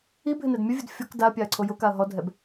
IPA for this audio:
ibʱɪnɛd mʲʊvʲʊd fʲɔk daɐ̯pʲaɐ̯ǀʰo jʊkaɐ̯ ɦɔdʱɛb

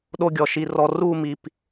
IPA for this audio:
ɗo˦ɡʲɔ˨ʃi˧rɔ˧ ru˦˨mi˨p

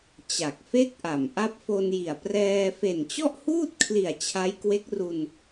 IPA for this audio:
t͡ɕa˨˩k̚fe˥˩k̚ʔa˨˩m ʔa˦˥p̚fo˧nji˨˩a̯ prɛː˧ fe˨˩nt͡ɕɔ˥˩ʔhuː˥˩t̚kʰli˨˩a̯ t͡ɕʰa˦˥jkwe˦˥k̚ru˧n

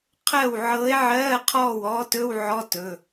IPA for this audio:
qʰɜ˥˩w ʕɤː˧˥e̯ʕɜː˧˥˧ qʰɔː˥˩wɔː˧˥tɵ˧˥˧w ʕɔ˧˥˧tɵ˩˧˩

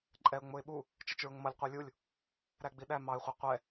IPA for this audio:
ǃʼɛʊ̯ ŋ͡mʊɪ̯ ɓu | t͡ʃɛt͡ʃɹʊŋmʌlʲ qʷə˞lʲulʲ | ɾæɡ͡biɗæ mɑɪ̯χʷɛ qʷɛ

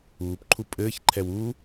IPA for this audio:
uːpǃʰu pʼɘːçǃʰɛw u

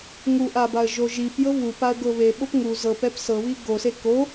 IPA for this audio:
ŋuʔabaə̯ ʒoʒipjɤ βup aə̯ɡɤβe ɓopŋu zɤpɛp sɤβi ɡose ko

